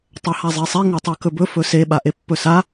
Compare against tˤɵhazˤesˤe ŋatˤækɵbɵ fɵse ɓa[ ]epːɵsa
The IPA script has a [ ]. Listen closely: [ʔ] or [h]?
ʔ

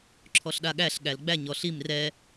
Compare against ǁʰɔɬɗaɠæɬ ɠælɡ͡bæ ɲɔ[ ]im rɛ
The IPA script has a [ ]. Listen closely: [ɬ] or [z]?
ɬ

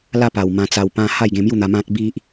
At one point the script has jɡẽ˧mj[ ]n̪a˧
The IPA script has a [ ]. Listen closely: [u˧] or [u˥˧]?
u˥˧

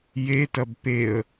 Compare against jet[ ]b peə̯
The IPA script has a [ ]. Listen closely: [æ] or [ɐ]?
ɐ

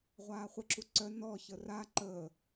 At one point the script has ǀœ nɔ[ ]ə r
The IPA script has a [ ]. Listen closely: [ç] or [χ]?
ç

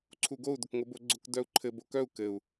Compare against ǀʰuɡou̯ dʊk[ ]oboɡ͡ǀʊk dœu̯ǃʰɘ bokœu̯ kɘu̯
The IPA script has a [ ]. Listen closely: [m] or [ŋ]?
ŋ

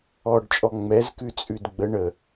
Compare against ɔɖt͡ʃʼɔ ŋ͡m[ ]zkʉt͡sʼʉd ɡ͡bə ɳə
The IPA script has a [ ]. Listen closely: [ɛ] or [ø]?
ɛ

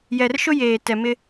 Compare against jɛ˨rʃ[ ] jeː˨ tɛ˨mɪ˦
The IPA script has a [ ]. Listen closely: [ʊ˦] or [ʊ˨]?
ʊ˦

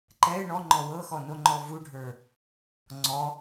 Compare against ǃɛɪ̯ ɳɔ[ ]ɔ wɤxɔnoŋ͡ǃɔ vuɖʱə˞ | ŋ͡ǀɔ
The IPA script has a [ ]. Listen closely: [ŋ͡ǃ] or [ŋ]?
ŋ͡ǃ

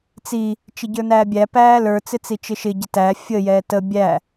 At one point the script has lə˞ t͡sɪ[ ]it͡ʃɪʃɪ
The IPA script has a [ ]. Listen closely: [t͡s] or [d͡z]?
t͡s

